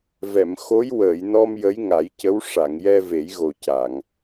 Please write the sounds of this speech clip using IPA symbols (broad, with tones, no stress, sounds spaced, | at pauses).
v ɛ˨˩˨ m x o˧˥ j w əː˨˩˨ j n ɔ˧ m j ə˧˥ j ŋ a˨˩˦ j c ə˧˥ w ʂ a˨˩˨ ŋ j ɛ˧ v e˨˩˦ j ɣ o˨˩ c a˨˩˨ ŋ